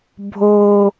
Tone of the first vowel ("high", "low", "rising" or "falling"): high